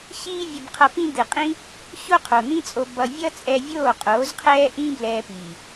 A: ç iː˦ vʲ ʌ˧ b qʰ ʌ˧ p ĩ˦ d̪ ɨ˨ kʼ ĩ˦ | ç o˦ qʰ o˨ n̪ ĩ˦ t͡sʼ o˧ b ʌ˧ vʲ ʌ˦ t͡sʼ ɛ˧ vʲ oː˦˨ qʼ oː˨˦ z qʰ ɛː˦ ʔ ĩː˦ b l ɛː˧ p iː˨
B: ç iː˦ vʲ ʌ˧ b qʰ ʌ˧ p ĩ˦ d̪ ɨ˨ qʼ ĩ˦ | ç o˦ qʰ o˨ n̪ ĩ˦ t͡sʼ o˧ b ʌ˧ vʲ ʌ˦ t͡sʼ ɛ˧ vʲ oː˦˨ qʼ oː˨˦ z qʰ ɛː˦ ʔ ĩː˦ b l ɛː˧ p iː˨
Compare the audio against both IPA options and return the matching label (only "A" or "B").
B